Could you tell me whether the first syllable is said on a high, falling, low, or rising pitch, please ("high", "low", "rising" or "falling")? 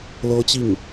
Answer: high